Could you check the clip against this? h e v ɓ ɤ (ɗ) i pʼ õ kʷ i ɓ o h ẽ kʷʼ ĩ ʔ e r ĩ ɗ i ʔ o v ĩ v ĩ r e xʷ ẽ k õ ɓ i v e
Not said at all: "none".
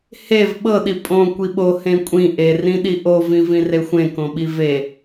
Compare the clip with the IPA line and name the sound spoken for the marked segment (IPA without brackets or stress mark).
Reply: ɗ